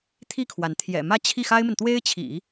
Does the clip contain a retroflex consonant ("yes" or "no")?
no